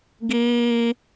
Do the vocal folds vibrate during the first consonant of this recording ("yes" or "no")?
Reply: yes